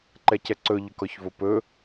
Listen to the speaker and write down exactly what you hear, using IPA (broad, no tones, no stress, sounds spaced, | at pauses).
ǃ ɛ c ɛ ǀ ɵ ʎ ɵ k ɔ ç v o p ɵ